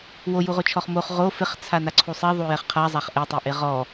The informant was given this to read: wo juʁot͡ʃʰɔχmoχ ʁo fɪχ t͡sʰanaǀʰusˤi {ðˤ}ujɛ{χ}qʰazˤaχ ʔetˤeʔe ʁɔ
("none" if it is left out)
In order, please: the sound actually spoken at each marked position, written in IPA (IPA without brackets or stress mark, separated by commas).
ðˤ, χ